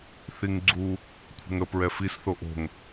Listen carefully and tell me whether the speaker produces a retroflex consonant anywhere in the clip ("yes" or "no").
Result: no